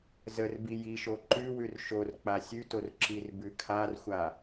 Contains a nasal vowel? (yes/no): no